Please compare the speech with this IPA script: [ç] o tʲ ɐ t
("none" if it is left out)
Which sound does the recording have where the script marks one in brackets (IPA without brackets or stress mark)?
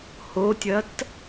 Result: h